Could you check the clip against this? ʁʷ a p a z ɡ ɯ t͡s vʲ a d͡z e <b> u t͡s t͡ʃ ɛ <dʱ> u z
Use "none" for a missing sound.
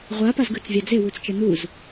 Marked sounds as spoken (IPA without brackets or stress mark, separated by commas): w, n̪